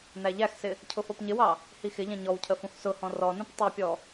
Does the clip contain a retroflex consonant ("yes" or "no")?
no